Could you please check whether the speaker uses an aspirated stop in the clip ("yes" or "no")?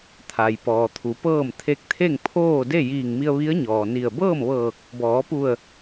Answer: yes